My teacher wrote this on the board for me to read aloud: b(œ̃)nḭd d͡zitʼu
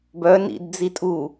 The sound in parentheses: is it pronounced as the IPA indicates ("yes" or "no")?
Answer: no